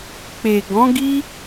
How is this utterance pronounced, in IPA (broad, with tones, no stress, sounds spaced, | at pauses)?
k͡p e˨ ɡ ɔ̃˨˦ ɡ i˦